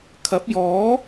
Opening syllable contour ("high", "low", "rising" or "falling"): rising